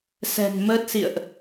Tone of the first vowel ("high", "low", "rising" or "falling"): low